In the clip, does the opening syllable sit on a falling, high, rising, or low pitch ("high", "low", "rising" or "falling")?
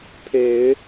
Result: low